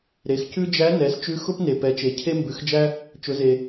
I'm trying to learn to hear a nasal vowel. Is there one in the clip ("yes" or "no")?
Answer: no